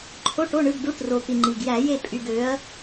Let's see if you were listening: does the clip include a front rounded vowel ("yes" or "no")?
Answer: yes